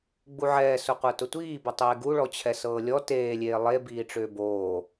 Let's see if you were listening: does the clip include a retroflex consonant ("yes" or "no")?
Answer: yes